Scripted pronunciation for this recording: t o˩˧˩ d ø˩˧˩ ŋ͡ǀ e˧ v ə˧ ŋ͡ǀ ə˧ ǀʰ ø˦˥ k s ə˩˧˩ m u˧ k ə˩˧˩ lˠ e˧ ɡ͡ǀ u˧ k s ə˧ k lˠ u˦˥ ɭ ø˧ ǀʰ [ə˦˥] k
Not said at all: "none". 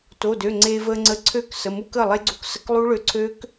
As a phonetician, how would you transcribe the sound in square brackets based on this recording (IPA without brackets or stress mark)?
ø˦˥